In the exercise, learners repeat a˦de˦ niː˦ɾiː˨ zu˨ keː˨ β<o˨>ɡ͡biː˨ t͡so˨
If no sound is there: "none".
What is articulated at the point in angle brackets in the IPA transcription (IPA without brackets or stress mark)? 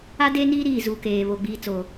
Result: o˨